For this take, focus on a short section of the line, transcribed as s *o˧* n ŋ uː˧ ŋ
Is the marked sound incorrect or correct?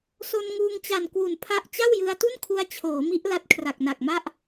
correct